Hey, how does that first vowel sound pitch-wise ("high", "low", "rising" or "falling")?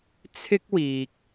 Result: high